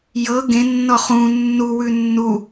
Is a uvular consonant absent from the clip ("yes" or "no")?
no